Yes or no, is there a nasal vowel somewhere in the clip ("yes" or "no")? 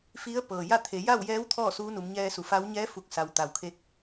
no